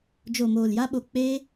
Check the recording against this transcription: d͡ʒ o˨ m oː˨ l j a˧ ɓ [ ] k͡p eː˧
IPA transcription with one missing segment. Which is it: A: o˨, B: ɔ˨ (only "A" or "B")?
A